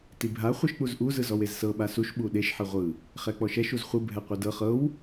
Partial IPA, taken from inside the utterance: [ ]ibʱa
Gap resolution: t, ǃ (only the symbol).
t